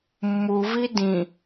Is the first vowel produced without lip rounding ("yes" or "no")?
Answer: no